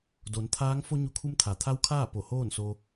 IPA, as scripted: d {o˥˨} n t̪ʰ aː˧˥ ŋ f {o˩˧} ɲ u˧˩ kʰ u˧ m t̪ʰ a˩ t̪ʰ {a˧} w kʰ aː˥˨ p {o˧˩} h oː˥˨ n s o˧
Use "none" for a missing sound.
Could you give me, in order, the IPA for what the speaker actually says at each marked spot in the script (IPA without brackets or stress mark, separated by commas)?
o˩˧, o˧, a˧˥, o˧˩